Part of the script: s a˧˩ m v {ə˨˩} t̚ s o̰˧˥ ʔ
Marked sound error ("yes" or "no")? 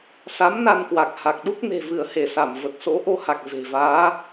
no